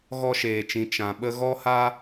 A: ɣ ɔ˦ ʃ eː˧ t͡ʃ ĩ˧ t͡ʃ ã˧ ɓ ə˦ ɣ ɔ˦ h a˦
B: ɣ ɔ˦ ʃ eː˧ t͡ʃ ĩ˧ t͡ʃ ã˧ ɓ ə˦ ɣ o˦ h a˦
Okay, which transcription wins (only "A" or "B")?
A